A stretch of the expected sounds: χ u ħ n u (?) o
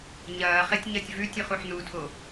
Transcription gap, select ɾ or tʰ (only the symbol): tʰ